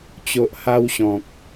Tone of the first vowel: low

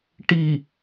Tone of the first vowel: low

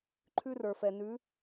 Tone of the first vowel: high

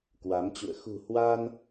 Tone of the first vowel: rising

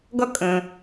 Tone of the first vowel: high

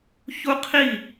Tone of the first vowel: high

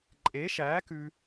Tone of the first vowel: rising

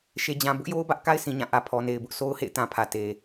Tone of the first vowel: low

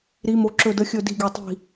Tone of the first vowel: rising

